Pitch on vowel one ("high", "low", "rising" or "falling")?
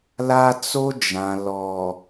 high